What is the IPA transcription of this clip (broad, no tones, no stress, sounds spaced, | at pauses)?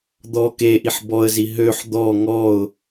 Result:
d̪ ɔ k e ʔ i ħ b ɔ ə̯ z i ɦ ø ħ d̪ ɔ ŋ ɔ ʊ̯